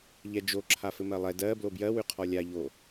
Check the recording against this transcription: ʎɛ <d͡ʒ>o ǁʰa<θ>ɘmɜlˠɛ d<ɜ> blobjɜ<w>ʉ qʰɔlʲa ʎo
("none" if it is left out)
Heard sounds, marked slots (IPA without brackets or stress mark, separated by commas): d͡ʒ, f, ɜ, w